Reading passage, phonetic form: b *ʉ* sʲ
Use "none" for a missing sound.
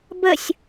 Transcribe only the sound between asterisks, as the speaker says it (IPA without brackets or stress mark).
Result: ə